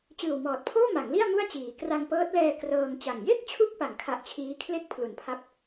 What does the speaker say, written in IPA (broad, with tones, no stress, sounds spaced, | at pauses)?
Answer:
t͡ɕ ɯː˨˩ w m ɔː˨˩ t̚ pʰ oː˥˩ m a˩˦ ŋ l i˥˩ a̯ m u˥˩ a̯ t͡ɕ iː˩˦ k r a˧ ŋ p ɤː˦˥ t̚ l ɛː˧ k r ɤː˧ ŋ t͡ɕ a˨˩ ŋ j e˥˩ k̚ t͡ɕʰ u˦˥ k̚ p a˨˩ ŋ kʰ a˦˥ ʔ t͡ɕʰ iː˦˥ kʰ l e˥˩ k̚ pʰ l u˩˦ n pʰ a˦˥ p̚